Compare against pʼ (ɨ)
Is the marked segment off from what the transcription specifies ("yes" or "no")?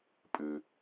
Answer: no